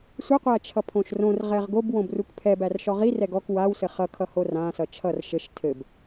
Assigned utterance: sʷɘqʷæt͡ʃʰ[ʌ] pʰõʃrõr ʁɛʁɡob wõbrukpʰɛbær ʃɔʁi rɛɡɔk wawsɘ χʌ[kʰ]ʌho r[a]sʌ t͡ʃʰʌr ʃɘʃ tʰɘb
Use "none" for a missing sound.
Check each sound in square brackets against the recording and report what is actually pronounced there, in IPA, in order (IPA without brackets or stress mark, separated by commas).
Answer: ʌ, kʰ, ã